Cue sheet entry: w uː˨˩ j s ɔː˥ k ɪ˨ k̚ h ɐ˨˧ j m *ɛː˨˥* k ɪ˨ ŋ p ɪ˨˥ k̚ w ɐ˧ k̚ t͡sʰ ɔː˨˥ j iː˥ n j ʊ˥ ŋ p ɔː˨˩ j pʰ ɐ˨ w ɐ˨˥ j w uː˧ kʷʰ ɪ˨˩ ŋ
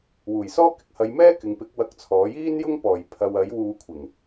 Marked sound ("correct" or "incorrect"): incorrect